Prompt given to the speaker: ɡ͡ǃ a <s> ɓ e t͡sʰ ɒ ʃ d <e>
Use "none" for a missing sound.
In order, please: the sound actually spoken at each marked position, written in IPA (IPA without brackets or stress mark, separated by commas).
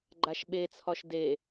ʃ, e